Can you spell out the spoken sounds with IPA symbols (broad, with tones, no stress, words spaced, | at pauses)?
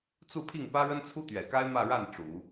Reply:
t͡su˥˧pʰi˥˩ŋpä˥ ɻə˥nt͡sʰu˥t̪ɥɛ˨˩ka˥ɪ̯ mä˥˧ɻa˥˩n ʈ͡ʂu˨˩˦